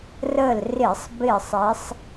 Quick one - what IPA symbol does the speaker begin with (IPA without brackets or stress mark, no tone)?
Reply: r